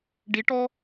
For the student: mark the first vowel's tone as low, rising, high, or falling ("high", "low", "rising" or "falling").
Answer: rising